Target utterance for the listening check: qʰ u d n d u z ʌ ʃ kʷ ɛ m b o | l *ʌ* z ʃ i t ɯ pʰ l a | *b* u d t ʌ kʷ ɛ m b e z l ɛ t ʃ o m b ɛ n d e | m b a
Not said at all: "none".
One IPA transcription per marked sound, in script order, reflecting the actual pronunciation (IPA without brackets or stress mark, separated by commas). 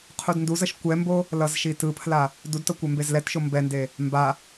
ʌ, d